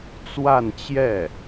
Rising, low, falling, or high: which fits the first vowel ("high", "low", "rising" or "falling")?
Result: falling